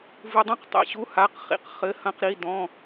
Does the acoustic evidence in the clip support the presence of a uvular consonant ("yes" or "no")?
yes